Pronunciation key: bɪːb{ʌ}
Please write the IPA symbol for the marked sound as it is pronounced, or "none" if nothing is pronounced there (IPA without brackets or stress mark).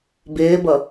ʌ